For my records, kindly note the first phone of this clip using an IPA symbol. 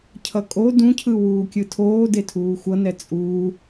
cʰ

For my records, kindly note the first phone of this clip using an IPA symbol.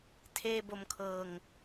tʰ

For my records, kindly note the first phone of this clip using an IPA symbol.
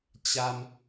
t͡ɕ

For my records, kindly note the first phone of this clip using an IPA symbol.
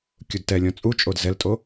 kʲ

